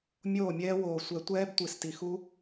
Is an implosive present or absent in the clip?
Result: absent